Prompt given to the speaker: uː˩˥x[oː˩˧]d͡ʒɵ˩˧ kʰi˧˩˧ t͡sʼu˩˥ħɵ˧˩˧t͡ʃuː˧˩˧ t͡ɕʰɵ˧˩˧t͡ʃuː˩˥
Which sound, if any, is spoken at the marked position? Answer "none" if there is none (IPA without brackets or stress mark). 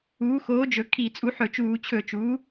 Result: oː˩˥